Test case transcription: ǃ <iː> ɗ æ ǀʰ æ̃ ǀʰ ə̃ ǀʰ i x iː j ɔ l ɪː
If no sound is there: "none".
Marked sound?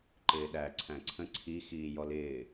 ɪː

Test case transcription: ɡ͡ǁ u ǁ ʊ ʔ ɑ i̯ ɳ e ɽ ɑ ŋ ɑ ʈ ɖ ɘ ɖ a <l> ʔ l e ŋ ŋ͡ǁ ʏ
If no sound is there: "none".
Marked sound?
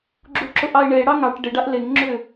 none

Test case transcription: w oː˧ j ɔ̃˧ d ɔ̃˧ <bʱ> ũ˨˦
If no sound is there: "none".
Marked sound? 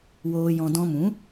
m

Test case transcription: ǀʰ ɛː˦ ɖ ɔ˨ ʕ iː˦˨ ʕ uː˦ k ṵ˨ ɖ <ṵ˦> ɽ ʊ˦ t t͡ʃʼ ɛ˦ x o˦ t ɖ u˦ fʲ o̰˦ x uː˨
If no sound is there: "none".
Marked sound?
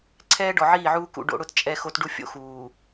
o̰˦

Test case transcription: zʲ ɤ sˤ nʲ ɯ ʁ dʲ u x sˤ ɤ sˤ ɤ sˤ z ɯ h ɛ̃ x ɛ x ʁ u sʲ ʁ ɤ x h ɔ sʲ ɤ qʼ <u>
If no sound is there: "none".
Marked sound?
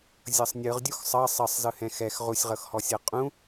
ũ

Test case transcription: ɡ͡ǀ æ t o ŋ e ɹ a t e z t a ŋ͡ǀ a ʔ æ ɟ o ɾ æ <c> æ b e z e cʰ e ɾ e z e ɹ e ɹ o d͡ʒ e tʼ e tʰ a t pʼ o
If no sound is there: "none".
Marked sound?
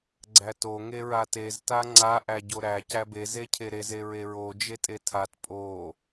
c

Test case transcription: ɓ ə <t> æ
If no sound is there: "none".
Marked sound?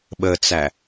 t͡s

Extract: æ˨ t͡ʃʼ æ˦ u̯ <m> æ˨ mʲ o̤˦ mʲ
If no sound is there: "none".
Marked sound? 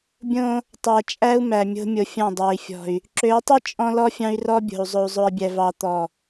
m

